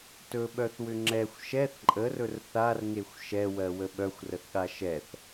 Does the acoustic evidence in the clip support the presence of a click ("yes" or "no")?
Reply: yes